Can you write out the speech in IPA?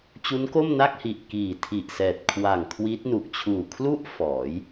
t͡ɕ u˦˥ n k o˥˩ m n a˥˩ k̚ h i˨˩ ʔ k iː˨˩ tʰ i˨˩ ʔ s ɛː˨˩ t̚ kʰ w a˨˩ ŋ kʰ w i˦˥ t̚ n u˨˩ ʔ t͡ɕʰ uː˨˩ kʰ l u˥˩ ʔ f ɔː˩˦ j

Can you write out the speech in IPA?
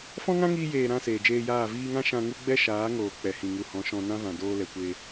f ɔ̃˦ ŋ ã˦ ŋ iː˧ j eː˨ ɾ ã˦˨ s eː˨ d͡ʒ eː˧ j aː˦˨ v iː˧ ŋ ã˦ ʃ ã˧ ŋ u˦ ɡ͡b ɛ˦ ʃ aː˨˦ ŋ oː˨ k͡p ɛ˨ h ĩ˨ ŋ u˨ h ɔ̃˨˦ ʃ ɔ̃˧ n ã˦ v ã˨ d oː˧ l ɛ˨ kʷ e˧

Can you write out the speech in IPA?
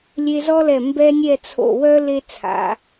lʲ e˧ z ɔ˥ l ɛ˧˩ m b ɛ˥ nʲ ɛ˥˧ t͡sʰ o̰˧˩ w œ˥ l e˥ t͡sʰ a̰˩˧

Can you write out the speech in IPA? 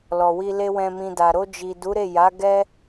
l ɔ˨ w i˧ l e˦ w ɛ̃˧ m ĩ˧ d a˨ ɾ o˧ d͡ʒ i˨ d u˨˦ ɾ e˦˨ j a˨˦ ɡ ɛ˦

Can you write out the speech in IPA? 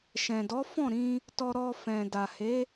ʃ ɛ̃˨ d ɔ˨˦ f ɔ̃˦˨ ɾ ĩ˧ | t ɔ˧ ɾ ɔ˧ f ɛ̃˨ d a˨ h e˨˦

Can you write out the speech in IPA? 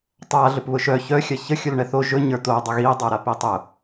tˤ a ɮ ɵ p β ʊ ʃ œ ç œ xʲ a ç ə xʲ ʊ l ɳ ɛ θ o ʒ ɵ ɲ ə˞ t̪ o dˤ ə ɣ i dˤ ə˞ ɾ a p i tˤ ʊ

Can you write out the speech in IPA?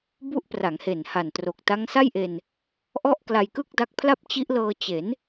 b u˦˥ ʔ p r a˩˦ ŋ h e˨˩ n h a˨˩ n t r o˨˩ k̚ t a˦˥ ŋ s a˥˩ j ʔ e˧ n | ʔ ɔ˥˩ ʔ k l a˧ j k ɯ˥˩ k̚ d a˦˥ k̚ pʰ l a˥˩ p̚ t͡ɕ i˦˥ ʔ l ɤː˧ t͡ɕ e˩˦ n

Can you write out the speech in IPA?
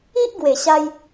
i˦ ʔ ɡ w e˨˩ ɕ a˧ j

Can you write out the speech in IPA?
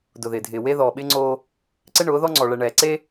d ʊ˨ ð ɪː˨ dʱ ɪː˨ w e˦ ð ɔː˨ ɓ ɪː˦ ŋ͡ǀ oː˦ | ǀ ɪ˦ ɳ ʊː˨˦ ð ɔ˦ ŋ͡ǀ ɔ˨ ɭ ɛ˨ ɳ ɛː˨ ǀ e˦

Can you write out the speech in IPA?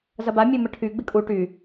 z ɐ b a mʲ ø m ə ʈʰ y ɡ͡b ɪ kʼ u ʈ y

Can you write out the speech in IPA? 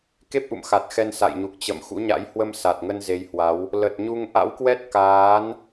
k e˦˥ p̚ ʔ ṵ˧˨ m x a˨˩ t̚ x ɛ˧ n s a̰˧˨ j ɲ u˨˩ k̚ t͡ɕ ə̰˧˨ m x ṵ˧˥ ɲ a̰˧˥ j h w ə˧ m s a˨˩ t̚ ŋ ə˧ n z e˨˦ j h w a˨˦ w | l ə˨˩ t̚ ɲ u˧ ŋ ʔ a̰˧˥ w k w ɛ˦˥ t̚ k aː˨˦ n

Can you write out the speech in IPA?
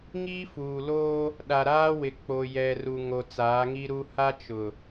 ŋ iː˦ f uː˨ l oː˦ | ɗ a˨ ɾ aː˦ w ɪ˨ k͡p o˨ j ɛ˨ r u˨ ŋ o˨ t͡s aː˨˦ ŋ i˦ ɾ u˦ h a˦ t͡ʃ ʊ˨

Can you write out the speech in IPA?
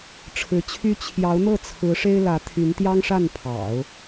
ʈ͡ʂʰ ɻ̩˧˥ t͡ɕʰ y˥ t͡ɕʰ j ɑ˧˥ ʊ̯ n̪ ɤ˥˩ t͡sʰ ɹ̩˧˥ ʂ e˥ ɪ̯ l ä˧˥ t̪ʰ y˧˥ n t̪ j ɑ˥ ŋ ʂ a˥˩ n pʰ ɑ̰˨˩˦ ʊ̯

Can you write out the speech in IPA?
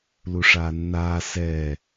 l u ʂ aː nː aː s ɛ

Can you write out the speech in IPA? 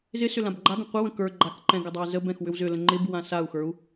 z ɪ s ʏ l ã b ɡ͡ǃ a ɡ ə̃ qʷ ɪ w ə̃ k ə˞ ɡ͡ǃ a k ǃ ɛ̃ ɡ ɪ dˤ a i̯ z ə b ɛ̃ x w ʏ w z ʏ l ə̃ ŋ͡ǃ ɪ b w ã s a u̯ x ə˞ u̯

